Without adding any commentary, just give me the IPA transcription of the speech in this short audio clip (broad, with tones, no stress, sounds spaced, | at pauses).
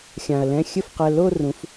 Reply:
xʲ ã˩ ɐ̯ l ɛ̃˩˧˩ xʲ ɘ˥˩ f q ɛ˩˧˩ l o˥˧ r ũ˩˧ f